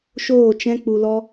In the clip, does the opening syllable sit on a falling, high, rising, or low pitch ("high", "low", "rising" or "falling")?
falling